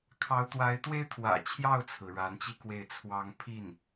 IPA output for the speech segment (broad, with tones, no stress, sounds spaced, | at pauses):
kʰ ɑ˧˥ ʊ̯ t̪ w a˧˥ ɪ̯ t̪ w e˥ ɪ̯ t̪ʰ w ä̰˨˩ t͡ɕʰ j ɑ˥˩ ʊ̯ t͡sʰ ɹ̩˩ ɻ a˧˥ n t͡ɕ i˥ k w e˥˩ ɪ̯ t͡sʰ w ɑ˥ ŋ pʰ i˥˩ n